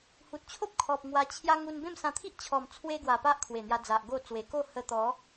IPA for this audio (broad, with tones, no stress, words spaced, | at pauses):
hu˨t̚t͡ɕʰo˦p̚kʰɔ˨p̚ ŋwa˧t͡ɕʰja˦ ŋu˧nbẽ˥˧m sã˧t̪ʰi˦ʔt͡ɕʰɔ˨˩m t͡sʰwe˧ ɡwa˨˩pa˦ʔ kʰwe˨˩n̪ja˧d͡za˨ʔ ɡo˥˧ t͡swe˨˩ko˥˧ hə˧t̪ɔ˨˦